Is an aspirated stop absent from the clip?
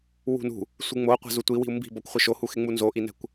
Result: yes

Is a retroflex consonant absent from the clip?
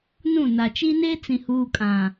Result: yes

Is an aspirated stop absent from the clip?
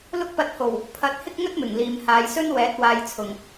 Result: no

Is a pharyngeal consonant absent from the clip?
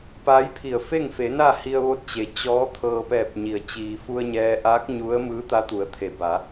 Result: yes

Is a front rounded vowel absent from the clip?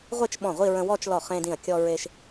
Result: yes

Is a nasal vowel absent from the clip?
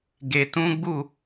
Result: no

